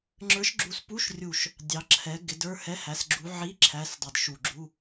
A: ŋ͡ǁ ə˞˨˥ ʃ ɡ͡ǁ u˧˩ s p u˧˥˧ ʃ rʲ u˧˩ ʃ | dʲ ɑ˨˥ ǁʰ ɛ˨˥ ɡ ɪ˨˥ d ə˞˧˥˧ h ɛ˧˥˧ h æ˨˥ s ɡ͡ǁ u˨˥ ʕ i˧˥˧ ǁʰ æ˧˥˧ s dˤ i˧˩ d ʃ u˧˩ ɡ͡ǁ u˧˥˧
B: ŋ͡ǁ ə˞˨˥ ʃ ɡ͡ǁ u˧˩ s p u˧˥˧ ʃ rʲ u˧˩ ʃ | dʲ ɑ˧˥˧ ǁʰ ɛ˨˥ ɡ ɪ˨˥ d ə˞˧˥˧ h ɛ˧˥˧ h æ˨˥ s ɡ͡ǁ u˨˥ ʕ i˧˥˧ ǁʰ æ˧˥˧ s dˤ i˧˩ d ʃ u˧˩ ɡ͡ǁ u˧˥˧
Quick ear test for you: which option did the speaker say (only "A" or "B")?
A